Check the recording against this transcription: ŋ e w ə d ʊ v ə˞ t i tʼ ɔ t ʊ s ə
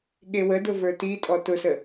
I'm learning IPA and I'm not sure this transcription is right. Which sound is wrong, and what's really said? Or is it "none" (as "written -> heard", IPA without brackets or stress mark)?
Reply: ŋ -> ɠ